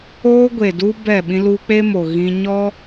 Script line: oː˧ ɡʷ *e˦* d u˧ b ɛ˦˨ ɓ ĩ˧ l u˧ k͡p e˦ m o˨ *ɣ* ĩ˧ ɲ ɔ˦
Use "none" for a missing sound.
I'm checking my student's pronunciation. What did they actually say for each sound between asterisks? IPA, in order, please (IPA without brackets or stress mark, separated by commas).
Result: e˨, ɣ